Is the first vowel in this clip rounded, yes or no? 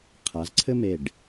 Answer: no